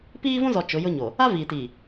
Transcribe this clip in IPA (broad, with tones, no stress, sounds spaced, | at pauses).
p iː˦ v ũ˦ z ɔ˨ t͡ʃ ʊ˨˦ j ʊ˦ ɲ o˨ | a˦ v i˨ t i˨